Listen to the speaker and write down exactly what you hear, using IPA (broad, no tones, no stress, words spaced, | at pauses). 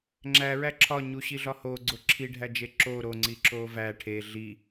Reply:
ŋ͡ǁæ ɹæǁʰɒ ɲuɕiɮɒho ɡ͡ǀoǁʰiɖʱæd͡ʒe ǁo ɾoŋ͡ǀi ǁovæ ʈʰe ɮi